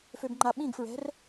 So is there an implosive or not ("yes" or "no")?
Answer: yes